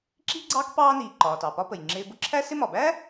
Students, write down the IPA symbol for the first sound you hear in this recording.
ǁ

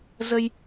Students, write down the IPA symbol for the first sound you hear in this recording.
z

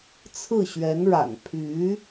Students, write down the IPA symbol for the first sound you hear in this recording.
t͡sʰ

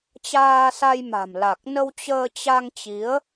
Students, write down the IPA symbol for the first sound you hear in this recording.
t͡ɕ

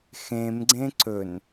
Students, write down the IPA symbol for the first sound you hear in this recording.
x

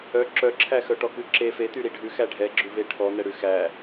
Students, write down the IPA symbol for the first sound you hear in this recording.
œ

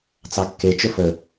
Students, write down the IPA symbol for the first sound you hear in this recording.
t͡s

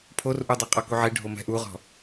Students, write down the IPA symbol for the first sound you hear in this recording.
pʰ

